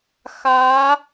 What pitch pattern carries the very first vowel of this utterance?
rising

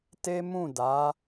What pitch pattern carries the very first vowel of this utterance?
high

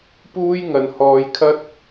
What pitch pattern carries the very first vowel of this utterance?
high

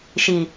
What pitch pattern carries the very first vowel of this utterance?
low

